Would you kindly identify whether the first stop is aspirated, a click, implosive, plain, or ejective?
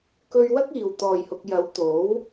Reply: plain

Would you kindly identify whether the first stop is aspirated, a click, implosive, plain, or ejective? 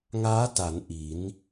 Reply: plain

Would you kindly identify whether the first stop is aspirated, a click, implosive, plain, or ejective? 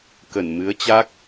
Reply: plain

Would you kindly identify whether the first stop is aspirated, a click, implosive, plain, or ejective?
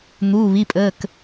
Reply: ejective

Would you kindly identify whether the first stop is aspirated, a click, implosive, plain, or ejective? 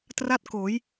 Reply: plain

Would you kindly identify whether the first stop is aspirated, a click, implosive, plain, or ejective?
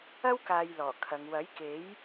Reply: plain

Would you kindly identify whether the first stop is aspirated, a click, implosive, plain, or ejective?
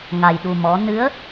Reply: implosive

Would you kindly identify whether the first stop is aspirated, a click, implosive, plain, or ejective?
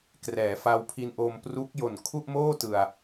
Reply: plain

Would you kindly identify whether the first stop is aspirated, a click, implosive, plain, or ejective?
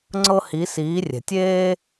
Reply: click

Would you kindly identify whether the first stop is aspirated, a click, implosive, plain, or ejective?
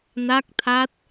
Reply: plain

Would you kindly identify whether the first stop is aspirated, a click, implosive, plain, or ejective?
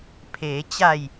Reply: aspirated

